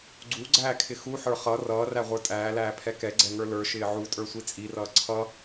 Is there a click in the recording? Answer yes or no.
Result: yes